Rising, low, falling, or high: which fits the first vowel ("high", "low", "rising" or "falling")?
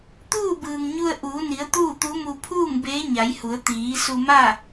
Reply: falling